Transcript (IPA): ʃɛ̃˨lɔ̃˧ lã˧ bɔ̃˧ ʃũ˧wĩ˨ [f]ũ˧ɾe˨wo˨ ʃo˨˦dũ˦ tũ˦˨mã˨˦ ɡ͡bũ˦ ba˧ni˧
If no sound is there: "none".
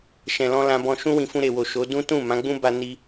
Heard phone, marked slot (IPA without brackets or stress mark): f